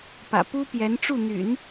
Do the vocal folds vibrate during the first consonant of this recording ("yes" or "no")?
no